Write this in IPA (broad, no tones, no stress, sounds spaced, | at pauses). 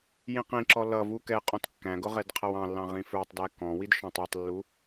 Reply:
j ĩ q ĩ ǁ ɔ l ʌ v u k ɛ qʼ ɔ̃ t kː æ̃ ɡ ʊ ʁ ɛ d qʰ ʌ w ɑ̃ lː ɑ̃ ʁ ĩ f ə˞ tˤ d æ k ɔ̃ w i d ʃ ɔ̃ tˤ u tˤ lː u